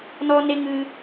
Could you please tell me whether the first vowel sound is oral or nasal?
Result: oral